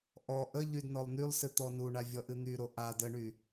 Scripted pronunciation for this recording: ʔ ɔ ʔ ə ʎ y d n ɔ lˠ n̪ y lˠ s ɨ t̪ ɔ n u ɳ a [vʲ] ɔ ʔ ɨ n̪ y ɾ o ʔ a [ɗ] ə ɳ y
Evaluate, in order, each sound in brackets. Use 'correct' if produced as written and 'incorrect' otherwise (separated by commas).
correct, incorrect